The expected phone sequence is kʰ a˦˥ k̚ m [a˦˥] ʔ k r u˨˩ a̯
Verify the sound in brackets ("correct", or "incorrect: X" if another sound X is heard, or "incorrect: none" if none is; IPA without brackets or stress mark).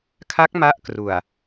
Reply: correct